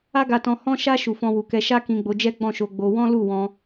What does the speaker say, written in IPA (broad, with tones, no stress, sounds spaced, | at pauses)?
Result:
a˦ ɡ a˧ t ɔ̃˧ h ɔ̃˧ ʃ a˧ ʃ u˨ f ɔ̃˧ w u˨ k ɛ˧ ʃ a˦ k ĩ˧ ɡ͡b o˧ d͡ʒ ɛ˦ ɡ͡b ɔ̃˦˨ ʃ o˧ ɡ͡b o˧ w ɔ̃˦ l u˦˨ w ɔ̃˧